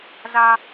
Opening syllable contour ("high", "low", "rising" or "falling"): high